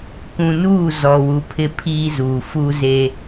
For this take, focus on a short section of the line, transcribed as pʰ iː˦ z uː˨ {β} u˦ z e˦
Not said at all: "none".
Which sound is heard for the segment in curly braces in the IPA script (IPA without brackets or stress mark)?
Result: f